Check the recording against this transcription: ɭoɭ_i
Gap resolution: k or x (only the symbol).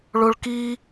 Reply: k